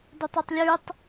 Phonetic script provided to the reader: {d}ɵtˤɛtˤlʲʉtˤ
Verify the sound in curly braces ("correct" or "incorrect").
correct